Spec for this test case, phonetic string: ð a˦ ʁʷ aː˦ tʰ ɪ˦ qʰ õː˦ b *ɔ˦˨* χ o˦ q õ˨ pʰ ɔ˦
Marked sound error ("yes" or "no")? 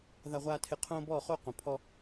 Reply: no